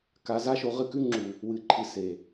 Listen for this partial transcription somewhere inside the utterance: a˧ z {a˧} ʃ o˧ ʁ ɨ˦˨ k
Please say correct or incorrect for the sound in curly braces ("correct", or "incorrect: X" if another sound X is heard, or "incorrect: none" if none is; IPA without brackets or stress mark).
incorrect: a˦